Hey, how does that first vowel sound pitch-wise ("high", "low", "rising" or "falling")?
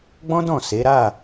high